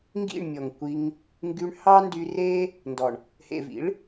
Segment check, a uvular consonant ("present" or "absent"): absent